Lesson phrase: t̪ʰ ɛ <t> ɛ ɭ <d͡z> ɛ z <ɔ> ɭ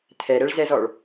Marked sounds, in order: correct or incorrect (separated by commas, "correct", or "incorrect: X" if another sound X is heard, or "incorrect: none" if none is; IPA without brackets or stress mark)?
incorrect: ɾ, incorrect: z, correct